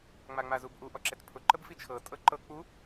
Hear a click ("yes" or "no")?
yes